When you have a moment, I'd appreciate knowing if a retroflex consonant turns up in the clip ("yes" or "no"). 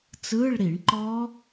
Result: yes